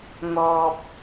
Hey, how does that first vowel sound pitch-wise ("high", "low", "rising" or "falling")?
low